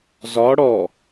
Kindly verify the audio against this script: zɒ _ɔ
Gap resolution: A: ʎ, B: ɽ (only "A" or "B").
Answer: B